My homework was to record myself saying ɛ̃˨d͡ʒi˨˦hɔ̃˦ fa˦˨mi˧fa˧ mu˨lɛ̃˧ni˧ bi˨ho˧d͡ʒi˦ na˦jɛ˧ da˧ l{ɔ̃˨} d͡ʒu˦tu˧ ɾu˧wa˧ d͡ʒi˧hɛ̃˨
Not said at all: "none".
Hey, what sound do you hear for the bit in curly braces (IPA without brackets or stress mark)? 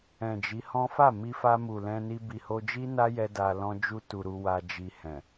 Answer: ɔ̃˦